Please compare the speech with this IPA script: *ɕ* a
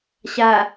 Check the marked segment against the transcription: correct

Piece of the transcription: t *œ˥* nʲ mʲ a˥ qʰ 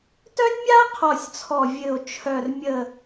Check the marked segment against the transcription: correct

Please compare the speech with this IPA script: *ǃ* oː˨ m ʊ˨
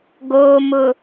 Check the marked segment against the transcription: incorrect: ɡ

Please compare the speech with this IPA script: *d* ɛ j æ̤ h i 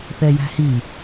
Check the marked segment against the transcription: incorrect: θ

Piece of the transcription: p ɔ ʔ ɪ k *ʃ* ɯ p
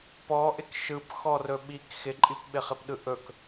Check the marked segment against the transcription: correct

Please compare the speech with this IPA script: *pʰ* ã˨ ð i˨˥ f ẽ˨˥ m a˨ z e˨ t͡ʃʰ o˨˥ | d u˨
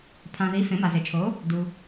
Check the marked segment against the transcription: correct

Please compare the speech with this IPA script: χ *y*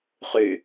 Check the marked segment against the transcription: correct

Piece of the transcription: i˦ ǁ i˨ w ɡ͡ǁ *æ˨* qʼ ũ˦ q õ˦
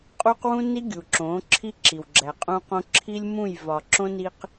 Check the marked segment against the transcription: correct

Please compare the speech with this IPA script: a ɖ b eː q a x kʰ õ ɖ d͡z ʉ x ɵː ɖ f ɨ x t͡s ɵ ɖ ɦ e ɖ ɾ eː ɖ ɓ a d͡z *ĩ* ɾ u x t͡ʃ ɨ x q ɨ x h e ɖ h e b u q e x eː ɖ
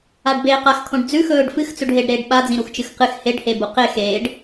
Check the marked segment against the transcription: correct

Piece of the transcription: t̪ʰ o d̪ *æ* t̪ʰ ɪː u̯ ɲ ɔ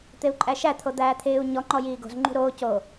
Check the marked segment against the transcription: incorrect: æː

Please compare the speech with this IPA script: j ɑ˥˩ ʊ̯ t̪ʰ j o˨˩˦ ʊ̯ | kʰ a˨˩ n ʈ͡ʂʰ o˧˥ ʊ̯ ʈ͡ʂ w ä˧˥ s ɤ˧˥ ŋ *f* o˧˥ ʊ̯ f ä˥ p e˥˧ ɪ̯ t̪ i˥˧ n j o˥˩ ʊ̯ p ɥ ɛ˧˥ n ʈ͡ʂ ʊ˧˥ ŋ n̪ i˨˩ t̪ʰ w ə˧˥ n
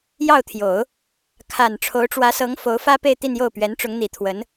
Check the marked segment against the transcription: correct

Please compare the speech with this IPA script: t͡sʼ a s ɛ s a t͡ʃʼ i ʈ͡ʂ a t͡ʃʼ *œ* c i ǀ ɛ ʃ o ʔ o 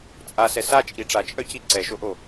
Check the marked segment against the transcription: correct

